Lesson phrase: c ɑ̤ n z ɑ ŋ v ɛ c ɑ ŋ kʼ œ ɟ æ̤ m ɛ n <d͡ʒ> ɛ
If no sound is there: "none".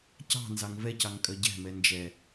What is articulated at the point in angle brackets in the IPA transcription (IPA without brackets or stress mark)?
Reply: d͡ʒ